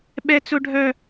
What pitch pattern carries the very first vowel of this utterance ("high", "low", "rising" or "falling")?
high